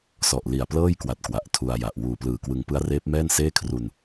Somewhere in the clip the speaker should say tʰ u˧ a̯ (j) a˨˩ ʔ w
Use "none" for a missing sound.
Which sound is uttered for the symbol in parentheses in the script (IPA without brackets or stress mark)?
j